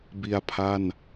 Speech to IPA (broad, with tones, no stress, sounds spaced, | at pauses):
b i˧ a̯ pʰ a˥˩ n